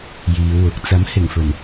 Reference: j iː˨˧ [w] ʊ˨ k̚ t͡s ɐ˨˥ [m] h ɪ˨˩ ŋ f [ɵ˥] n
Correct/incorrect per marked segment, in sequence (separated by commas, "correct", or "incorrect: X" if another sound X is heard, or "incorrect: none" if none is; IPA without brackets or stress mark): correct, correct, incorrect: ɵ˨˩